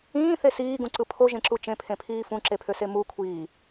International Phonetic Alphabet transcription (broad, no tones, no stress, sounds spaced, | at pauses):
ĩː θ e s iː ɡ ũ ǀ ɯ pʰ o ʒ ẽ ǁ u t͡ʃ ẽ pʰ ẽ pʰ iː f ũ ǁ e pʰ ø s e m u kʷʰ iː